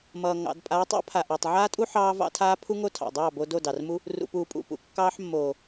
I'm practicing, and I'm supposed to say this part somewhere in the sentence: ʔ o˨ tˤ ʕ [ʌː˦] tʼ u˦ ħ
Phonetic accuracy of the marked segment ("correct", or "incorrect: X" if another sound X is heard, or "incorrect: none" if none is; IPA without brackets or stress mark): incorrect: aː˦